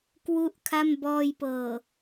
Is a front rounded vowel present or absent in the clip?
absent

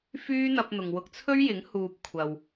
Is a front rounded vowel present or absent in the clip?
present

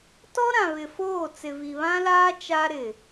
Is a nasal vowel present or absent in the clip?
present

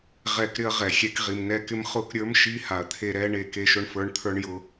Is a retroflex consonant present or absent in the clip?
present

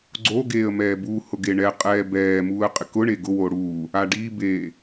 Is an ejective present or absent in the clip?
present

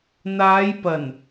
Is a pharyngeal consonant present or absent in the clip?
absent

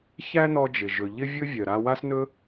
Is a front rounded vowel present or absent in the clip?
present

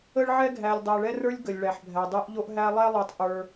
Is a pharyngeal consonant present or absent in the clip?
present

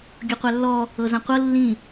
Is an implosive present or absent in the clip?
absent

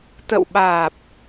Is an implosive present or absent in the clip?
present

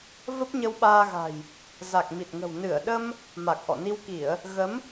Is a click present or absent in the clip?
absent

